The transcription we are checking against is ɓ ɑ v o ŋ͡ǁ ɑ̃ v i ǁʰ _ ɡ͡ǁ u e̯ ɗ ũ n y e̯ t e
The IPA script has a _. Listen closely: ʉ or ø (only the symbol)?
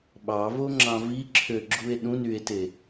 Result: ø